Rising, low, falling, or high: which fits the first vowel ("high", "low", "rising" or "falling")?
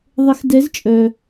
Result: rising